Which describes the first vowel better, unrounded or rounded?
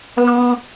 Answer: rounded